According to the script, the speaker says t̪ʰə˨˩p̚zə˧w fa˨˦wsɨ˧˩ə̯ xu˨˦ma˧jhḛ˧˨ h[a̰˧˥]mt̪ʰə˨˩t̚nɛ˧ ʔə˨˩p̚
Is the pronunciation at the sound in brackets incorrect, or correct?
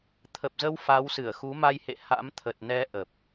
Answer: correct